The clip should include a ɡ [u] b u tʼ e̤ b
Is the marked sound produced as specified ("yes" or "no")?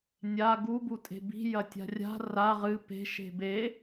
yes